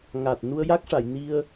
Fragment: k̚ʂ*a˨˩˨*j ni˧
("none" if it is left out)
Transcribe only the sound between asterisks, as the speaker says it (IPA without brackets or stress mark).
a˨˩˨